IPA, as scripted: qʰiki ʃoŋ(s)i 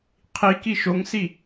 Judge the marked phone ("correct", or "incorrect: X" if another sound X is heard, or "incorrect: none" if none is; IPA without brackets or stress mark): correct